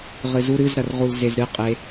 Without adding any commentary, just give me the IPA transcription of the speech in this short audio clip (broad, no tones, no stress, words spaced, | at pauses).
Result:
ʁɨzu ɾɨzɾɐrʁul zezɾɨqʼe